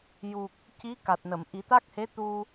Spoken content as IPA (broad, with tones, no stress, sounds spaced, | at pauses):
j u˨˩ k̚ | c i˧˥ k a˨˩ t̚ n ə˨˩˨ m ʔ i˨˩˦ t̪ a˦˥ k̚ h e˧˥ t̪ u˧